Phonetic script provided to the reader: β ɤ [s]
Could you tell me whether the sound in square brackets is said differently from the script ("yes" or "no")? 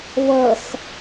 no